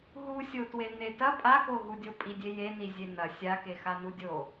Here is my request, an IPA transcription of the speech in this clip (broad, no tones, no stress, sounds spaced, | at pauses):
ɦ u sʲ o t w e n e t ɐ pʼ a k o ɦ u dʲ o pʼ i dʲ e j e n i zʲ e n ɐ sʲ a k e x a n u dʲ o